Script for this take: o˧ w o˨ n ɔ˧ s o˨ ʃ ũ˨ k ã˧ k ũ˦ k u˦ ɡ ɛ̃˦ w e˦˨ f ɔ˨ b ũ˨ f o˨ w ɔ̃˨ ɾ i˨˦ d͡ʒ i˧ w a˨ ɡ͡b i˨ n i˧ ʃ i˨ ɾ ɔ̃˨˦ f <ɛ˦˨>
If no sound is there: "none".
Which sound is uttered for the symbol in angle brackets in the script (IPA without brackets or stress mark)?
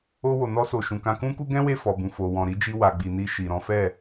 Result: ɛ˦˨